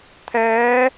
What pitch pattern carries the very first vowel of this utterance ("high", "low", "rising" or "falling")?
rising